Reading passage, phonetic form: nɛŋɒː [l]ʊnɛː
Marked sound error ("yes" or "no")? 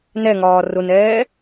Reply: yes